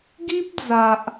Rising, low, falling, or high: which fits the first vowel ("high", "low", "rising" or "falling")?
high